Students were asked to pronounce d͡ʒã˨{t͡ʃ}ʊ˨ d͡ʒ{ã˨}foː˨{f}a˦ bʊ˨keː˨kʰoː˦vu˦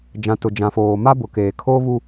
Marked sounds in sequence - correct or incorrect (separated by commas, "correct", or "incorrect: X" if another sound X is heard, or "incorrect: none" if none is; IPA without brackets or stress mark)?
incorrect: t, correct, incorrect: m